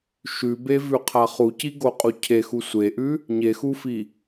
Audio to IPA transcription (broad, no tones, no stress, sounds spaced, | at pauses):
ʃ ʉ b e v ʉ qʰ a χ u c i ɡ o qʼ u cʰ e x u sʷ e ʔ ʉ | ɲ e x u f i